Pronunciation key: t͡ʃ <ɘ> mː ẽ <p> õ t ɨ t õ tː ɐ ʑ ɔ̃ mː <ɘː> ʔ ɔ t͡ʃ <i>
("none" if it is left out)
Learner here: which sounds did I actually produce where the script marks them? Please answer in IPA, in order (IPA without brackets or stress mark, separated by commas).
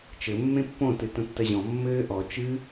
ɘ, pː, ɘː, ɨ